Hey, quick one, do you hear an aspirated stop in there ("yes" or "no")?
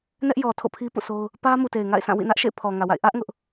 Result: yes